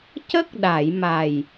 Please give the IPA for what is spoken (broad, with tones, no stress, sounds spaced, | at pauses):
c ə˦˥ k̚ ɗ a˨˩˨ j m a˨˩ j